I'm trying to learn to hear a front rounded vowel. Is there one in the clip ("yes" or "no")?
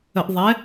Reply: no